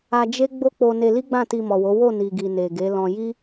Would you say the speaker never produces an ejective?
yes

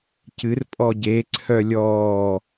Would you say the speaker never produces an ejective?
no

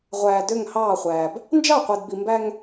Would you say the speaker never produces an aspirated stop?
yes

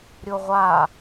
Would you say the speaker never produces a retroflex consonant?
yes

